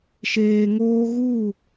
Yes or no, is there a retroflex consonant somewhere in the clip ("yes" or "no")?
no